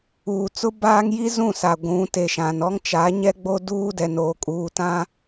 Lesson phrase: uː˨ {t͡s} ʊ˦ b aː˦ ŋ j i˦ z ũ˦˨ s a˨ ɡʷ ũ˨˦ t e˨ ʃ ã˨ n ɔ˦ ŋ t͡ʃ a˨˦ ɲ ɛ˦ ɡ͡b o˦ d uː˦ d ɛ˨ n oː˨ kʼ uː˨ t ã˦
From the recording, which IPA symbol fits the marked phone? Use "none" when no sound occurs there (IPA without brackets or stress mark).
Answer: t͡s